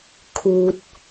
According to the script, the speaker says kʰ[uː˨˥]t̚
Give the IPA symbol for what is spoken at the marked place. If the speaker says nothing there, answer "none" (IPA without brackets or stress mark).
uː˥